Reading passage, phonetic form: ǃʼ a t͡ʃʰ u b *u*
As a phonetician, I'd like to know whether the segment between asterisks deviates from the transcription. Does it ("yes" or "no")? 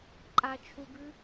yes